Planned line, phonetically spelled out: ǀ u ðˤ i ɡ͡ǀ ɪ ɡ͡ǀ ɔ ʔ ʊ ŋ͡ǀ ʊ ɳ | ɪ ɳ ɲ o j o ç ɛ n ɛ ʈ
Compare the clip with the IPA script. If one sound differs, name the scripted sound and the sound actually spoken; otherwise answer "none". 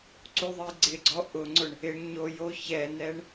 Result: ʈ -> ɳ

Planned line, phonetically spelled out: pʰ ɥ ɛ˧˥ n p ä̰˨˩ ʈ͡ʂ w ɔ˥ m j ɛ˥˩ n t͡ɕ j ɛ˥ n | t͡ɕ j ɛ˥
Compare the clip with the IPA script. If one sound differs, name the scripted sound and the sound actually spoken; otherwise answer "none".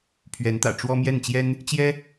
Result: p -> t̪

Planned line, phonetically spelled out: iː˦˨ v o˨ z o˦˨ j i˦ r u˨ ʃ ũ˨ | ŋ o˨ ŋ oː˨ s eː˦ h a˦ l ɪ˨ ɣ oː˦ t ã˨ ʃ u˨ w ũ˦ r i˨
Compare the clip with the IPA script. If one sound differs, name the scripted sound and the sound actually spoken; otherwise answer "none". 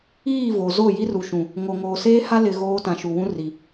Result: none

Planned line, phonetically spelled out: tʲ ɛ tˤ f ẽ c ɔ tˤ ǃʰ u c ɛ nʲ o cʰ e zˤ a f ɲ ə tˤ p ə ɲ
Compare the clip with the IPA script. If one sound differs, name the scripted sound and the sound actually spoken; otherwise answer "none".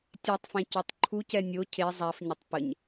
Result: none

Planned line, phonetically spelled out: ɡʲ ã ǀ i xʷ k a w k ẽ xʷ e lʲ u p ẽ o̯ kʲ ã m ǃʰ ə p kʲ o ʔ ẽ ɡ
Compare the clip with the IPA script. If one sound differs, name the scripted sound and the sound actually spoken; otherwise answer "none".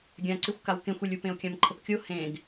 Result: ʔ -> h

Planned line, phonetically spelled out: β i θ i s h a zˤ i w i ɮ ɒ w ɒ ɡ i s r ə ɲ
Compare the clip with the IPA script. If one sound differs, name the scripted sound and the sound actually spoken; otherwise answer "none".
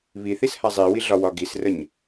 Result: none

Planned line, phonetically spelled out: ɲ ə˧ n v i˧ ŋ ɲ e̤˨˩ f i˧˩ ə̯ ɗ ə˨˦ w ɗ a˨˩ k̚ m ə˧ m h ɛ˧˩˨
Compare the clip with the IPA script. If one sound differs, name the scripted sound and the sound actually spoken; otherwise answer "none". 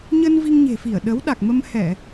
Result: none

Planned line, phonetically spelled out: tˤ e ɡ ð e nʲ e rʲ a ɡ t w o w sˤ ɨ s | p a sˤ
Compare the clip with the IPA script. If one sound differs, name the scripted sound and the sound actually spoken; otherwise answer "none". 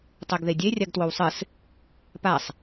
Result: nʲ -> dʲ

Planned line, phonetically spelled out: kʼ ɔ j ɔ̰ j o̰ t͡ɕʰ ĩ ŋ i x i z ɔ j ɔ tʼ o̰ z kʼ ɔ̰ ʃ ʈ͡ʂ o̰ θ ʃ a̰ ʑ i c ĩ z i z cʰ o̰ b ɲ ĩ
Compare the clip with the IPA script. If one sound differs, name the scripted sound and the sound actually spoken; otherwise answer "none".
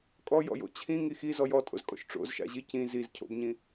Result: θ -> z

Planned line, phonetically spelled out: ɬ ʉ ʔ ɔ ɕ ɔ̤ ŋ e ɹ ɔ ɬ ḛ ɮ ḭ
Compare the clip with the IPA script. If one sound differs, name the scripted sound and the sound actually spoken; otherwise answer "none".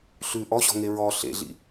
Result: none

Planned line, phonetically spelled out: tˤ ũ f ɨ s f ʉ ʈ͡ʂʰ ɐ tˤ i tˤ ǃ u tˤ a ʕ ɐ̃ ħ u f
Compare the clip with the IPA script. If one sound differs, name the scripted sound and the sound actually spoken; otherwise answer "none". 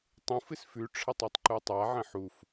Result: none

